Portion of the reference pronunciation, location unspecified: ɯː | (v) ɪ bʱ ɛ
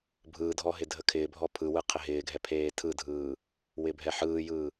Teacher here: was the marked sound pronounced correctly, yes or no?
no